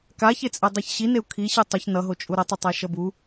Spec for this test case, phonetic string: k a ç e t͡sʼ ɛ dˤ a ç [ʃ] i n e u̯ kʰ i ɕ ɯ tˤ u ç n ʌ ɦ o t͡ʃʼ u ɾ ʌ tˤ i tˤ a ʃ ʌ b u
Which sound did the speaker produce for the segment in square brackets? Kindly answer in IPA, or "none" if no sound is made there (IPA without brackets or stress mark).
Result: ɕ